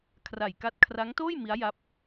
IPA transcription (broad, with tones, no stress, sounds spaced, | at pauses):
kʰ r a˨˩ j k a˦˥ t̚ kʰ r a˦˥ ŋ t oː˥˩ j m i˦˥ a̯ j a˦˥ p̚